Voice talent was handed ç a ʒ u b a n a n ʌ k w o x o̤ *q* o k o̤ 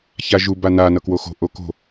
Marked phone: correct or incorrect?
incorrect